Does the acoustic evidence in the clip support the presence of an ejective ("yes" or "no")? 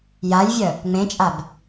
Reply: yes